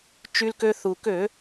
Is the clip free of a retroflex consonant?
yes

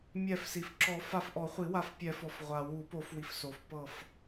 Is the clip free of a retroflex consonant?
yes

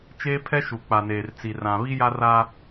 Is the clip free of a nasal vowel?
no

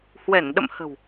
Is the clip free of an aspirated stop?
yes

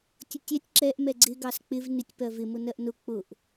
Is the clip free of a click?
no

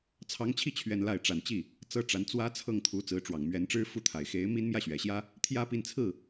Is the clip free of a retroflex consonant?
no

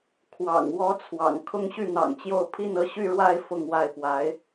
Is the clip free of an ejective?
yes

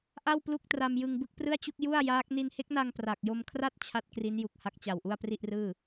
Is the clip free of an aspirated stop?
no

